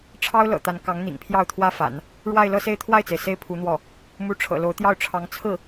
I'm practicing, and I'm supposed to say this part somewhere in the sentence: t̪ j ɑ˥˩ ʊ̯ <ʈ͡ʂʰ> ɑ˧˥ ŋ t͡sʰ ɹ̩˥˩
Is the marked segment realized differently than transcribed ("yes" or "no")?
no